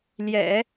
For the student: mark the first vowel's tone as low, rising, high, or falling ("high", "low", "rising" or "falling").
low